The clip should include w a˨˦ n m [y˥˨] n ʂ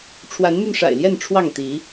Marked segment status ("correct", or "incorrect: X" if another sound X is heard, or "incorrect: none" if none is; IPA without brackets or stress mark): incorrect: y˧